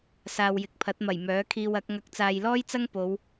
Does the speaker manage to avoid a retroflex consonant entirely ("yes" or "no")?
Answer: yes